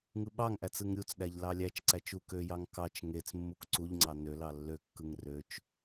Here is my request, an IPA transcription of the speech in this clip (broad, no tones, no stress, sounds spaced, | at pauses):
ŋ ɯ ɓ ɑ ŋ ʔ æ t͡s ɯ ŋ ɾʲ u t͡s ɗ æ ʎ l ɑ lʲ æ t͡ʃ ǀ æ t͡ʃ u k ø j ɑ ŋ k ɑ t͡ʃ ŋ e t͡s mː u k ǀ u ʎ ŋ͡ǀ ɑ n ø l ɑ lː ø kː ɯ ŋ r ø t͡ʃ